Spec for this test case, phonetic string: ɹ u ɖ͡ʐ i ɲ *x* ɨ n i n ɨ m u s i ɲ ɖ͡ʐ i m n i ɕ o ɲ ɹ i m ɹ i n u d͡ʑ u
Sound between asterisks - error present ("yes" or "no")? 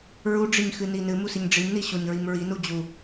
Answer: no